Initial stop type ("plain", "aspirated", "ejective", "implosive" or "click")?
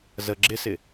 click